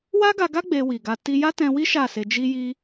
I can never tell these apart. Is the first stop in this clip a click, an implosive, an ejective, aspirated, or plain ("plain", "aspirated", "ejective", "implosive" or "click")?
plain